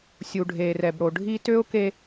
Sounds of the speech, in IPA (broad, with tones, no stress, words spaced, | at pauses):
sʲu˨ɖʱeː˨rɛ˨bɽo˨ ɖʱi˦ tø˦ʊ̯ ke˦